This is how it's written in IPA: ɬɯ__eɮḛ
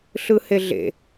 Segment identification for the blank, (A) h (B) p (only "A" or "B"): A